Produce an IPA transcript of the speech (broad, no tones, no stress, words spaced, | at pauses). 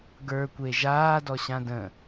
ɡə˞kʷe ʒaːdɔɕã də̃